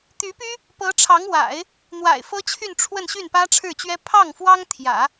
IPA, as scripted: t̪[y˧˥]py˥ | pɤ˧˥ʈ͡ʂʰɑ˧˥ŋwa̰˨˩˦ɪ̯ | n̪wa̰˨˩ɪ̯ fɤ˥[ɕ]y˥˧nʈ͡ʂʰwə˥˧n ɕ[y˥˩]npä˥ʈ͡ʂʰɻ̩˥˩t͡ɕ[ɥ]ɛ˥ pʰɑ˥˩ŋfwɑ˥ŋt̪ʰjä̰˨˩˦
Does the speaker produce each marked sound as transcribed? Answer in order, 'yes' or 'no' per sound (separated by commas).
yes, no, yes, yes